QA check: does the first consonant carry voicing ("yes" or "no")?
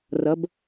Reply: yes